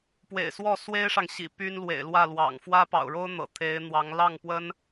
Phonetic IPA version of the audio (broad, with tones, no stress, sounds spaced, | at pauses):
p w ḛ˨˩ ɪ̯ s w ɔ˥˩ s w e˥ ɪ̯ ʂ ɑ˨ ŋ ɕ ḭ˨˩ p y˥ n l w ḛ˨˩ ɪ̯ l w ä˥˩ l w ɑ̰˨˩ ŋ f w ä˥ p ɑ̰˨˩ ʊ̯ ɻ o˥ ʊ̯ n̪ ɤ̰˨˩ t̪ʰ e˧˥ ɪ̯ n̪ w ɑ˧˥ ŋ l ɑ˥˩ ŋ p w ə˥ n